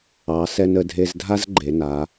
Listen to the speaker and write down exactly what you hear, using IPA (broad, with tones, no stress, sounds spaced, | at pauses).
ɑ˩˧ s ɛ˧ n ə˩˧ dʱ e˧ z dʱ a˥ z ɡ͡ǃ e˩˧ n a˩˧